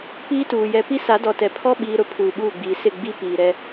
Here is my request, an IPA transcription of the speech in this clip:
piː˦tuː˨ jɛ˨ pi˦sa˨˦dɔ˨tɛ˨ pʰɔ˦ɓiː˨ɾʊ˦ pʰuː˨ɓuː˦˨ɡ͡biː˨ sɪ˦˨ ɡ͡bi˦piː˨ ɾɛ˦

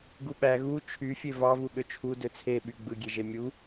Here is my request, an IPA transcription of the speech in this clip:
ɡuɓæ ɣu t͡ʃʰyfʲe vɑvu ɠøt͡ʃʰu døt͡sʰeɓy ɡ͡bɯɡʲeʒe mʲu

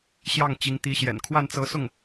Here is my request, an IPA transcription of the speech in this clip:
ɕjɑ˥˩ŋt͡ɕi˧˥ŋt̪i˧˥ɕjɛ̰˨˩n kʰwa˥˩nt͡sɤ˧˥sʊ˥˩ŋ

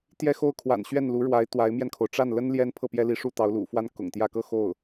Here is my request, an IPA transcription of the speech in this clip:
t̪jɛ˥˧xo˥˩ʊ̯kʰwa̰˨˩n ɕɥɛ˥˩nlu˧˥ɻwa˧˥ɪ̯ t̪wa˧˥ɪ̯mjɛ˧nkʰo˩ʊ̯ ʈ͡ʂa˥˩nlə˥n ljɛ˥npʰɤ˥˩ pjɛ˥li˧˥ʂu˥˩t̪ɑ˧˥ʊ̯ lṵ˨˩fwa˥n kʊ̰˨˩ŋt̪jä˥˧ kɤ˥˧ xo˥˩ʊ̯

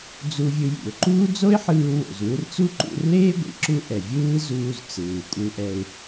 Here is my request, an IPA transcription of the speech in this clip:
d͡zu˧vʲɯ˧ jḭ˩ʊ̯ǃuː˥ d͡zo˥ɪ̯ħɯː˧wo̰˩z wɯ˧rt͡su˥ǃṵ˧rleː˥ ɡʷḭ˩ǁu˥ʔɛ˩ vʲɯː˥zuː˧z t͡sɯː˩kʷʼɯ˧ʔɛ˧ɪ̯

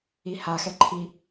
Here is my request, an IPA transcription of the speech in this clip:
ihaxɛ ǃʰi

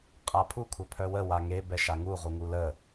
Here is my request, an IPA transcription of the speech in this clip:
qʼapʰu kʷʰœpʰœwə waŋe bɛʃaŋu ʁuŋulə

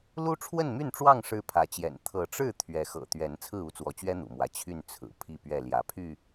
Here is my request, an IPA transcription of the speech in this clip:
lu˦ʈ͡ʂʰwə˥˨nmy˥˨nʈ͡ʂwɑ˥˨ŋ ʂɻ̩˦pʰä˨˦t͡ɕjɛ̰˨˩n t̪ʰɤ˨˦ʈ͡ʂɻ̩˥˨ t̪ʰɥɛ˨˦xɤ̰˨˩ t̪ɥɛ˨˦n t͡sʰɹ̩˥˨u˥˨t͡swɔ˨˦t͡ɕɥɛ˦ n̪ṵ˨˩mwä˨˦ t͡ɕʰy˥˨n t͡sʰɹ̩˨˩ pʰi˥˨pɥɛ˥˨ ljä˨˦pʰy˥˨

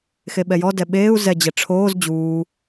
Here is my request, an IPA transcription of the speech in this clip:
xeɓɛjɔdɛ ɓeːu̯ zɛd͡ʑɛ ʈ͡ʂʰoːz d͡ʑuː

